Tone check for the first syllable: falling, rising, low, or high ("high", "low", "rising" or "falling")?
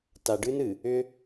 low